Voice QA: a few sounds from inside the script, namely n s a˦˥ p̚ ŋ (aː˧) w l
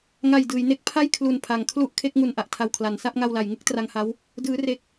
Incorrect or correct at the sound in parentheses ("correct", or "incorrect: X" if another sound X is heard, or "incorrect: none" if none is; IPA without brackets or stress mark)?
incorrect: a˧